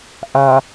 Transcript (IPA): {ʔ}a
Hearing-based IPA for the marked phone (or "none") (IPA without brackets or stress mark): ʔ